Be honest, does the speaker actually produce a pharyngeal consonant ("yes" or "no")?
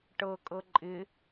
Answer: no